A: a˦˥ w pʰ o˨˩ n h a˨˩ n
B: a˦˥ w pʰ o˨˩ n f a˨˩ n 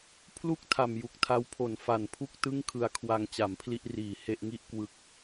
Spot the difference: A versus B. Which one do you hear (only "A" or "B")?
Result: B